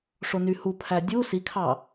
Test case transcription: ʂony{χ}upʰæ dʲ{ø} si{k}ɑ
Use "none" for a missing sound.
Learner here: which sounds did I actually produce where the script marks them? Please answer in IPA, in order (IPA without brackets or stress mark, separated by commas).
h, u, kʰ